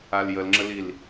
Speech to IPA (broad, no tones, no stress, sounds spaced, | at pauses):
a l j ə l ŋ͡ǁ ə l i l